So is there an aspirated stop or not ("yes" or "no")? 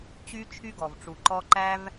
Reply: yes